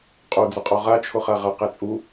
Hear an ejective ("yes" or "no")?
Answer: yes